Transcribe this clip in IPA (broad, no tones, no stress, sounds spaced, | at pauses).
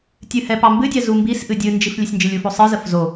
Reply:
tʲ ɨ h ɛ p ɑ m b ɨ dʲ ɛ z u m b i s ʔ ɨ dʲ ɨ n d͡ʒ i f lʲ ə sʲ n d͡ʒ ɨ lʲ u f o sˤ ɨ z ə f z o